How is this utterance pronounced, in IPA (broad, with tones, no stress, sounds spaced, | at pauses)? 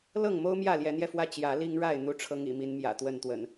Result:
l ɤ˥˨ ŋ m o˦ ʊ̯ m j ä˥˨ l j ɛ˨˦ n̪ j ɛ˧ f w ä˥˨ t͡ɕ j ä˨˦ l i˦ ŋ ɻ a˥˨ ɪ̯ n̪ u˦ ʈ͡ʂʰ ɤ˦ ŋ ḭ˨˩ m i˨˦ n m j ä̰˨˩ t̪ w ə˥˨ n t̪ w ə̰˨˩ n